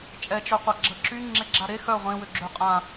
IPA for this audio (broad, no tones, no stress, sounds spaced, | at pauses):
t͡ʃʼ ɛ t͡ʃ œ qʷ a ɡ͡ǁ ə ǁ y ŋ͡ǁ e ɡ͡ǁ a ɾ e x œ ʁʷ ẽ w ø ɡ͡ǁ ø qʼ ã